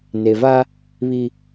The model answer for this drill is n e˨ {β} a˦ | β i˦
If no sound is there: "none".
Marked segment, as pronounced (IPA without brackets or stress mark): v